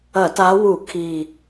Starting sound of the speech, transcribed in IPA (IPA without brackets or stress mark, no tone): ɐ